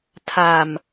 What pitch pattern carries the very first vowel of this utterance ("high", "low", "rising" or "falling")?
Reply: low